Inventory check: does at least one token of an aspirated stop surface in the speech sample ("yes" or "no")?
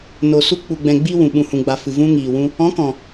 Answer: no